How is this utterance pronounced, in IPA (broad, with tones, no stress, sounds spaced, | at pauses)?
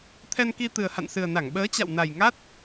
t̪ʰ ɛ˧ n k i˧ t̪ ɨ˨˩ ə̯ h a̰˧˨ n s ɨ˨˩ ə̯ n a˧˩ ŋ ɓ əː˨˦ t͡ɕ a̰˧˨ w n a˨˩ j ŋ a˦˥ t̚